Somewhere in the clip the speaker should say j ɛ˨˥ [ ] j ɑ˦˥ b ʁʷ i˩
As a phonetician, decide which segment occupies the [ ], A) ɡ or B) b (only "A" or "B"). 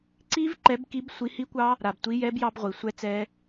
B